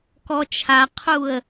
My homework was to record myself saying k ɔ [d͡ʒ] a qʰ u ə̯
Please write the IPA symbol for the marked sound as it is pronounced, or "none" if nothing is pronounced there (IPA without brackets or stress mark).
t͡ʃʰ